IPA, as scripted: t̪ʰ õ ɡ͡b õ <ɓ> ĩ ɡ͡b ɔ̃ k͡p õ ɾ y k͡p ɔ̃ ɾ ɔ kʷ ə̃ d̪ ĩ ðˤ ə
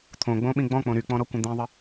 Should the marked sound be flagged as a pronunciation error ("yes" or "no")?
no